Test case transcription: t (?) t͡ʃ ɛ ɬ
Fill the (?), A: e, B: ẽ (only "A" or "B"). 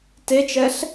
A